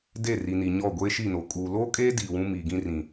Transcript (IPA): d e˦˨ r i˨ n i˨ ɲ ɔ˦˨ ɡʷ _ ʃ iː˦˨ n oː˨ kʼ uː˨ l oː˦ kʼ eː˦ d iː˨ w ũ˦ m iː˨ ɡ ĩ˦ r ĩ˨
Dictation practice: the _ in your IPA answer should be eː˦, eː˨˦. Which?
eː˦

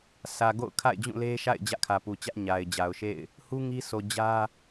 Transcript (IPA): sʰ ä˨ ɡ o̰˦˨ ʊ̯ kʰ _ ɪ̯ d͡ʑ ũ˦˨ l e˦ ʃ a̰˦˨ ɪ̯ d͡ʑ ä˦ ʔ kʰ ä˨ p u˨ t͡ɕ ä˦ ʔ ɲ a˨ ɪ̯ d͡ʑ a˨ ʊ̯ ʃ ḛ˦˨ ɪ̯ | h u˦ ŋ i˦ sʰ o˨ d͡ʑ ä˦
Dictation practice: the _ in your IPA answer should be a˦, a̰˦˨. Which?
a̰˦˨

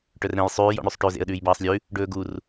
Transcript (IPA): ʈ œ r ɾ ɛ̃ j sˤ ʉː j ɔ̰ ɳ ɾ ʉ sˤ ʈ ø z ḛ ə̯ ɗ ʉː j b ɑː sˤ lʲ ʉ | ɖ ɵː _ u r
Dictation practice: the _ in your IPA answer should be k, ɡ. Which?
ɡ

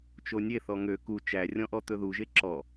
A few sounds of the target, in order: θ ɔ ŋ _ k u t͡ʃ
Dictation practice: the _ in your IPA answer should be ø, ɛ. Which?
ø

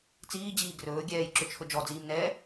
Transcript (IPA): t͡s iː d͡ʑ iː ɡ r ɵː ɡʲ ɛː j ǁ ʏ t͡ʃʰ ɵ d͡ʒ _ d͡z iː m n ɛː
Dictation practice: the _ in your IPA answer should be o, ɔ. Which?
ɔ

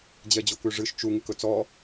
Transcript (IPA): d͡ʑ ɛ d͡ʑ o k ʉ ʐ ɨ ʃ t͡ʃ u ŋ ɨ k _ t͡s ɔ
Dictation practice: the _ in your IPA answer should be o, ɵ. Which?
ɵ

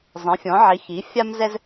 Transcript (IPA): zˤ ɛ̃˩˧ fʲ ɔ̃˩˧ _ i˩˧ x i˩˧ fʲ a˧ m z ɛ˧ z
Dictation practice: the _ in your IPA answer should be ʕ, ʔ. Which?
ʕ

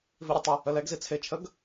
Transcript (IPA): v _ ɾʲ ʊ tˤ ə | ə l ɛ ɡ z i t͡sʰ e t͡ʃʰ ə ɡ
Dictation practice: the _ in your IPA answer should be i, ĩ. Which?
i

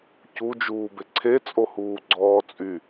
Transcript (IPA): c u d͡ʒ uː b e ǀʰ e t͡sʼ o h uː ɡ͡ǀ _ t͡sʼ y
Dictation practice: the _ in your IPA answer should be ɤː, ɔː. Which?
ɔː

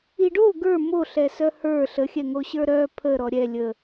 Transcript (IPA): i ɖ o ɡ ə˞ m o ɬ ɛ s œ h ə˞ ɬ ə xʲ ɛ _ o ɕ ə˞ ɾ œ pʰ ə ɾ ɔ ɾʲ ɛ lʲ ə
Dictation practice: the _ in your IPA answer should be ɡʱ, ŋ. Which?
ŋ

